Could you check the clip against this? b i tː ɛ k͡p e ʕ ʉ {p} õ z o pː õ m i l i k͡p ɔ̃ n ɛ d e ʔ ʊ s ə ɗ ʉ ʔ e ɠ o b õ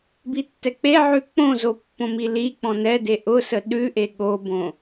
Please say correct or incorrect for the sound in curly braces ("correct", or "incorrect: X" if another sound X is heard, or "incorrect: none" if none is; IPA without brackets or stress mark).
incorrect: k͡p